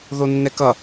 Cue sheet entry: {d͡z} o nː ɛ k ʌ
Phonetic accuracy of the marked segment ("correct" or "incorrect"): incorrect